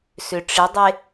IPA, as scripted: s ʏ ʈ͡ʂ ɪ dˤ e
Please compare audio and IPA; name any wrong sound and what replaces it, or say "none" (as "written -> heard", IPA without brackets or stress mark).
none